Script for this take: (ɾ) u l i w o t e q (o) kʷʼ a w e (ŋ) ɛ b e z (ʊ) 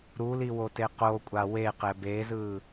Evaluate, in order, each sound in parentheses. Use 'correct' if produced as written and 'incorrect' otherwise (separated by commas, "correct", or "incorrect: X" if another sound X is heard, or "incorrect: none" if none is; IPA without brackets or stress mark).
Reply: correct, correct, incorrect: q, incorrect: ɯ